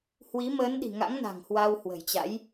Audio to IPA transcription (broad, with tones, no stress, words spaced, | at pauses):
hwi˨˦məː˨˦nɗi̤˨˩ŋa̰˧˥ŋ na̤˨˩ŋhwa˧whwə̤˨˩jt͡ɕa̰˧˥j